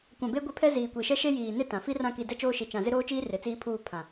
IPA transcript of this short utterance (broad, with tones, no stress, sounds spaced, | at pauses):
kʷ ã˨ b e˦ ɡʷ e˦ pʰ ɛ˦ z iː˨ kʷ i˨ ʃ ɛ˦ ʃ e˦ j iː˨ n ɪ˦ t ã˨ f i˦ r ã˦˨ k i˨ d ɛ˦ t͡ʃ oː˦ ʃ i˨ t͡ʃ ã˨ z ɪ˦ ɾ oː˦ t͡ʃ iː˦ r e˨ t͡s iː˦ pʰ uː˦˨ pʰ ã˨